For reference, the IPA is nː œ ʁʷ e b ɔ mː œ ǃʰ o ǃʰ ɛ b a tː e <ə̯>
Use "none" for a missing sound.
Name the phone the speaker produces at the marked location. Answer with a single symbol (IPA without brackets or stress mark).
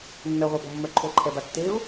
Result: ʊ̯